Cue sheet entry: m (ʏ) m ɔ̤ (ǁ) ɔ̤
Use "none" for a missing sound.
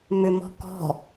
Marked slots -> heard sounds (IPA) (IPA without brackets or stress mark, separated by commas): ʏ, k